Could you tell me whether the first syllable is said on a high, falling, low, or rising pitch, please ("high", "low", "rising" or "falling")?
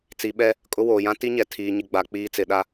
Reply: rising